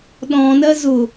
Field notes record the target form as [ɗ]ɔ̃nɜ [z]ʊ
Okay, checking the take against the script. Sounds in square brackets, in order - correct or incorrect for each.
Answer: correct, correct

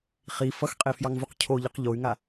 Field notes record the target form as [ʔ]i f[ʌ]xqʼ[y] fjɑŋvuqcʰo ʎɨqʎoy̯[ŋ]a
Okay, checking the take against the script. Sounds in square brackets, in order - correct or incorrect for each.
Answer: incorrect: χ, correct, incorrect: e, correct

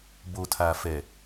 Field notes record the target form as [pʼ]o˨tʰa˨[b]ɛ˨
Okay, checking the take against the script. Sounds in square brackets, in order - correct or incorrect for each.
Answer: incorrect: b, incorrect: f

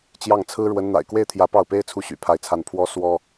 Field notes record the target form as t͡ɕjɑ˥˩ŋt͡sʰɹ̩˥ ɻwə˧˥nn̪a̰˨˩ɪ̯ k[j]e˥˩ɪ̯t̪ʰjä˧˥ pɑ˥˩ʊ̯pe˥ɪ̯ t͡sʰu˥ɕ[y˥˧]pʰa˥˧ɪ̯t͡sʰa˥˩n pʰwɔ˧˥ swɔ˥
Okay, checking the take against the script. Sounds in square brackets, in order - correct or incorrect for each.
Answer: incorrect: w, incorrect: y̰˨˩

